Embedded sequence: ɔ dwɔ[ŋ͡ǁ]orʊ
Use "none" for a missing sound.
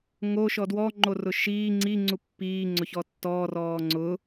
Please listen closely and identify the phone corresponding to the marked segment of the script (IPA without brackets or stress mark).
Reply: ŋ͡ǃ